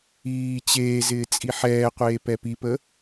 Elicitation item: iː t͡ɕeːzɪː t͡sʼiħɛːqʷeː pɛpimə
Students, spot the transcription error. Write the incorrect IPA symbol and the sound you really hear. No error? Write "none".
m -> p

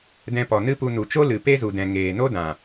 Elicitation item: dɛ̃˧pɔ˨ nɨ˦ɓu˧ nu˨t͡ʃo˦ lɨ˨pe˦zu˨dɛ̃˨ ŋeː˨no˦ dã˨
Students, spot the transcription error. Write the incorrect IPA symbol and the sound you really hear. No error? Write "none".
ɓ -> p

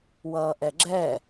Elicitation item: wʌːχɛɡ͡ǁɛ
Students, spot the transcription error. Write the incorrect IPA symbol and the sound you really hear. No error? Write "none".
χ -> ʔ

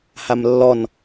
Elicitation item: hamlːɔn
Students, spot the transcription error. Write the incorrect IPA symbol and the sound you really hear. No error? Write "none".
none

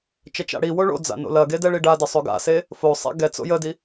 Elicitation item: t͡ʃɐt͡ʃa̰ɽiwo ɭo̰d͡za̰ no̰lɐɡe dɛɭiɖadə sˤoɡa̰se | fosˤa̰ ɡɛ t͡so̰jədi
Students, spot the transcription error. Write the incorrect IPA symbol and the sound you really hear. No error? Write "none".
none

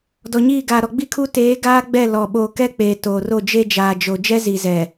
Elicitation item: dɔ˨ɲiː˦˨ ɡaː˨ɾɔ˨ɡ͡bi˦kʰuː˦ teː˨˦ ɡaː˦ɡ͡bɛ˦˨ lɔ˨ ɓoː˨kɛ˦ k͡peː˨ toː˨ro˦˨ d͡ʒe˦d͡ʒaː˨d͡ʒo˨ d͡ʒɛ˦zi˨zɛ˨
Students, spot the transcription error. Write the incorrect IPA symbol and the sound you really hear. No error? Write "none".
none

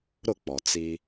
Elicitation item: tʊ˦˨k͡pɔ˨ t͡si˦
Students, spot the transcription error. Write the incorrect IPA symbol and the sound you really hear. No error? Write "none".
t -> ɾ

